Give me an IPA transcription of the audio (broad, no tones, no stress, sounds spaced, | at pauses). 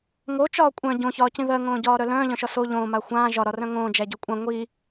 ŋ o t͡ʃ ɒː kʷʼ œ̃ ɟ õ ç ɒː c ĩ ð ɜ ŋ õː ɟ ɒː ɾ œ l œ̃ː ʎ œ̃ ʃ ɒ s o ʎ õː m a xʷ ãː ʒ ɒ ɾ ɒ r œ̃ ŋ õː d͡ʒ æ ɟ o kʷʼ ã ŋʷ i